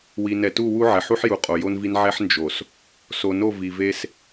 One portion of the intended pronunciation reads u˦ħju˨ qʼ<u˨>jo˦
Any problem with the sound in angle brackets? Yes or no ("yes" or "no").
yes